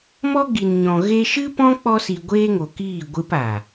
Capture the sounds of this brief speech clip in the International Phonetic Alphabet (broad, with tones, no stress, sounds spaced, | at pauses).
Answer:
m ɔ˦ ɡ i˨ n ɲ ɔ̃˨ ɣ e˧ ʃ ɨ˦ p ɔ̃˦ k͡p ɔ˧ s i˨ ɡʷ eː˦ ŋ o˨ k iː˦˨ ɡʷ ɨ˧ p a˨